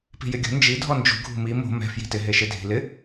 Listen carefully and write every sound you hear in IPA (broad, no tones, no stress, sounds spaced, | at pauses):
p i̤ j ɪ ɡʲ o̤ n d͡ʒ i dʱ ɔ n d͡ʒ ṳ ɡʱ ṳ m i m o̤ m ɛ̤ f j i̤ t ɪ ɦ e ʃ e dʱ i̤ l ɪ